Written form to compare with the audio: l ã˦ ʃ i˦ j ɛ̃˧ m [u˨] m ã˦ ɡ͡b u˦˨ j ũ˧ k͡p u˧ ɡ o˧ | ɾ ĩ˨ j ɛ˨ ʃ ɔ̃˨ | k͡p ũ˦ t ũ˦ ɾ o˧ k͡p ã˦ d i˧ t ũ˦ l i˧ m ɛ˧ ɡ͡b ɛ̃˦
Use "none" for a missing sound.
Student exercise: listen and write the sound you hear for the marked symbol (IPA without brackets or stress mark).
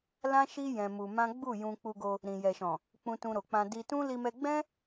u˧